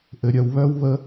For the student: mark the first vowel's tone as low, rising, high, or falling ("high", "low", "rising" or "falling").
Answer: low